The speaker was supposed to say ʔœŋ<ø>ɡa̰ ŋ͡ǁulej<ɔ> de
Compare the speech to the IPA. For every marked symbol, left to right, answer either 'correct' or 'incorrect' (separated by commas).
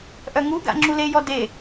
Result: incorrect, correct